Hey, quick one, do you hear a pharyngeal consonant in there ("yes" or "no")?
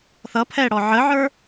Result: yes